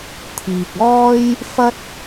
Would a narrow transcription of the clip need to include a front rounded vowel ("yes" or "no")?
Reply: no